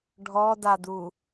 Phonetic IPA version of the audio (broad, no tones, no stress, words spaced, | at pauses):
ɖʱɔdadu